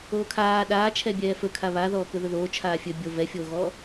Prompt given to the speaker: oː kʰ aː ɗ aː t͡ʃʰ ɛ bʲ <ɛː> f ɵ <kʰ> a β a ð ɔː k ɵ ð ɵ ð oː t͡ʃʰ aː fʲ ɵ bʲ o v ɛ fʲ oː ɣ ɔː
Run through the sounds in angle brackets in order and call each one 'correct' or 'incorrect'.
correct, correct

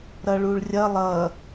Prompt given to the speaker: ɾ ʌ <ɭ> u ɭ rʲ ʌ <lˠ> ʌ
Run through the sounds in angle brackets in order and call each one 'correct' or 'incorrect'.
correct, correct

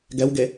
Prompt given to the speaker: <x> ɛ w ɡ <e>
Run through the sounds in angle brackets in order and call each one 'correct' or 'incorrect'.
incorrect, correct

